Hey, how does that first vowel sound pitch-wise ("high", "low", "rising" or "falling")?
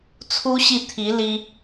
high